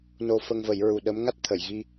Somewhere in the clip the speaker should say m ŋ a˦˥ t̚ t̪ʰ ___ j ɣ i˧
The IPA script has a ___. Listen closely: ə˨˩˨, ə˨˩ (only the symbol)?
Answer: ə˨˩˨